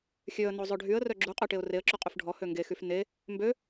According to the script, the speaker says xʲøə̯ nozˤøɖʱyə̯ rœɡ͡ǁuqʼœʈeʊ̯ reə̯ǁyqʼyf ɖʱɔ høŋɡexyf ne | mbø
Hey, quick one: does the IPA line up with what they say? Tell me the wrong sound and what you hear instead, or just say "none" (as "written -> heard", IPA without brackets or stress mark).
none